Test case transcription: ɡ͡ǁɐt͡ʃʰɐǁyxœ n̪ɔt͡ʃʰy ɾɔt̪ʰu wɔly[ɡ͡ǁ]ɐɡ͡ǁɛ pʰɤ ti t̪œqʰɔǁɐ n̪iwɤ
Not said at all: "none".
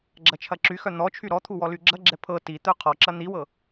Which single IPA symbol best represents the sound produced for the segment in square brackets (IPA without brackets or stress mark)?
ɡ͡ǁ